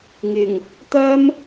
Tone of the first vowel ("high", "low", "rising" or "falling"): low